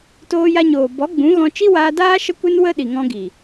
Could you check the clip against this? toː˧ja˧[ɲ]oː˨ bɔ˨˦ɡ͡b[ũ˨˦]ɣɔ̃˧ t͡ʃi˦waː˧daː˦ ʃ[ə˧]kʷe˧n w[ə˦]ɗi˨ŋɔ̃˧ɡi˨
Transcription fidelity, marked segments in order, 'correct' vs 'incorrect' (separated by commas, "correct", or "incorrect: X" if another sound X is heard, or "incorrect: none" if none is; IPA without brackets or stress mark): correct, correct, correct, correct